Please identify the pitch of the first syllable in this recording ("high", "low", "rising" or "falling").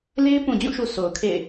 high